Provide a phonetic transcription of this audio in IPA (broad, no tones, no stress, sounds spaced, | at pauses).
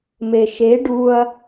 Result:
m e ʃ e ɖ u ɐ̯